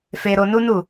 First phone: f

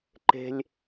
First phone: ǃ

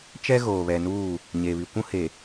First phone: t͡ʃ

